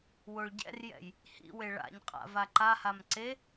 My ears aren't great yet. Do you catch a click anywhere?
yes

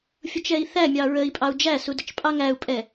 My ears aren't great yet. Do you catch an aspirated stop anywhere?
no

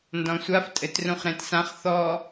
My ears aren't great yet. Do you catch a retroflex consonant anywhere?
no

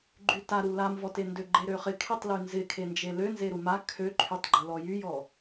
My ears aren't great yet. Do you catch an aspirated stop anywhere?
yes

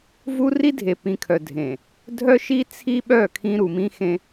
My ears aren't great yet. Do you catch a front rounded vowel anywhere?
yes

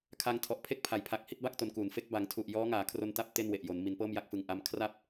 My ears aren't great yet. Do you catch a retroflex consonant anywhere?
no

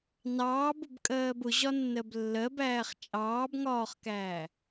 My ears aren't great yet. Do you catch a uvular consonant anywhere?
yes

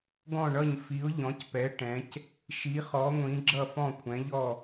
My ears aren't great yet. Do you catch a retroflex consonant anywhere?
yes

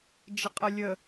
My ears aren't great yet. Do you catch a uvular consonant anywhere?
yes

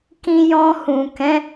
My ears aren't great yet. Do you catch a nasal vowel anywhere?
yes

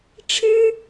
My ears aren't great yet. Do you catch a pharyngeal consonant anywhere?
no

